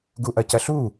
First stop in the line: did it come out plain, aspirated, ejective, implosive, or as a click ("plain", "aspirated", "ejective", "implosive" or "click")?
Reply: plain